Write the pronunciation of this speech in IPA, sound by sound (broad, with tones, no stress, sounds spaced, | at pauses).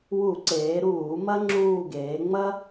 w u˧˩˧ ǀ eː˩˧ ɾ uː˧˩˧ m ɐ˥ ŋ͡ǁ uː˦˨ ɡ eː˩˧ ŋ͡m ɐ˥